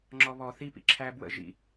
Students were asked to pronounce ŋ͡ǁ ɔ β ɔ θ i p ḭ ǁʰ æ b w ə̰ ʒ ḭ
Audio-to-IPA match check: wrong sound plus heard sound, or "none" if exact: none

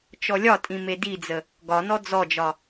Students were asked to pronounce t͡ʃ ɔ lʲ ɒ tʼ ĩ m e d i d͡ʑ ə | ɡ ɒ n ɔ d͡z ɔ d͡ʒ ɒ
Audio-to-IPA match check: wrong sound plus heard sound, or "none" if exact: d͡ʑ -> d͡z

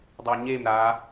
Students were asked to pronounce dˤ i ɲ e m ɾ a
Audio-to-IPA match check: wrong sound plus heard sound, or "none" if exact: i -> e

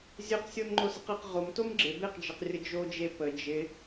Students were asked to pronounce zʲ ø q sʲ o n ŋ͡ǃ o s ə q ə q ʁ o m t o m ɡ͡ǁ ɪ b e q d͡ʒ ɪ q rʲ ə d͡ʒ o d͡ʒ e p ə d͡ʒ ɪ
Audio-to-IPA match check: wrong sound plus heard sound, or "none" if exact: none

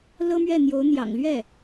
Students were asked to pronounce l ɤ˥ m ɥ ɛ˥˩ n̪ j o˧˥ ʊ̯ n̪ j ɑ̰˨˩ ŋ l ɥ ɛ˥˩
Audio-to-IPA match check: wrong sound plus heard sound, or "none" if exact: none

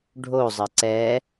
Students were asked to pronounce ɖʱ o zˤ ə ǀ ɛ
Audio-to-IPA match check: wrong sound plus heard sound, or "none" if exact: none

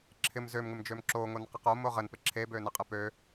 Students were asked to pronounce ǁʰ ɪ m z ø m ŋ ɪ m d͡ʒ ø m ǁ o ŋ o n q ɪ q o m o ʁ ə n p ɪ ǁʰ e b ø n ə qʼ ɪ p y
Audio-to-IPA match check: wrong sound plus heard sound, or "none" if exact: y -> ø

